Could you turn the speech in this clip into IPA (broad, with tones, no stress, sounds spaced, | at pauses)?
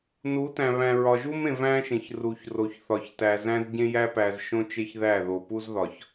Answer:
n u˨˦ t æ̃˨ β æ̃˨ ɹ ɒ˨ ʒ u˦ m ẽ˨ v æ̃˦ ʃ ẽ˨ ç r u˨ ç r o˨ ç θ ɒ˨ ç t æ˨ z æ̃˦ z ɟ ẽ˦ j æ˦ p æ˨ z ʃ õ˦ t͡ʃ e˦ ç ð æ˦˨ ð o˨ p u˦ z ð ɒ˨ ç